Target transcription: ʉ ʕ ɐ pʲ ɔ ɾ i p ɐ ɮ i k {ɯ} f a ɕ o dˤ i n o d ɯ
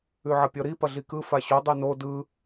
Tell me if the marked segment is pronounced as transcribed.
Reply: yes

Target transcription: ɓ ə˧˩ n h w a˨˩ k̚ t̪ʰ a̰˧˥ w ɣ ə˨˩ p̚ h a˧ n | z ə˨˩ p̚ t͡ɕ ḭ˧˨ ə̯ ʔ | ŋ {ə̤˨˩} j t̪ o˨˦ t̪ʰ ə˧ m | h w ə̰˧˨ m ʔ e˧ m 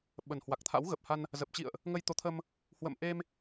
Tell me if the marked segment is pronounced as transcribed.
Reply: no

